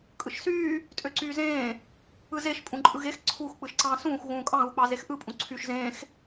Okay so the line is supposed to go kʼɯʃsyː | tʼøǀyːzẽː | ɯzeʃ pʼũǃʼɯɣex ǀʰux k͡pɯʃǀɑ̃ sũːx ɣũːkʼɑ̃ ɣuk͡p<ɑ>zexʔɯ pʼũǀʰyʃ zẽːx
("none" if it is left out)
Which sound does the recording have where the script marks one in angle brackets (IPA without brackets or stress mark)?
ɑ